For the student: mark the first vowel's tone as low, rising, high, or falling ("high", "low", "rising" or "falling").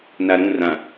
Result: low